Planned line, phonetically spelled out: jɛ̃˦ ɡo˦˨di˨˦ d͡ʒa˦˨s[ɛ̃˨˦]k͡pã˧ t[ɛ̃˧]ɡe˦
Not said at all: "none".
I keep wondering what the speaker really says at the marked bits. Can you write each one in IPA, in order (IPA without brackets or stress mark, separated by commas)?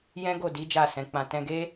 ɛ̃˨˦, ɛ̃˧